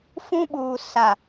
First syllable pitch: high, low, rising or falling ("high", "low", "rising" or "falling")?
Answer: high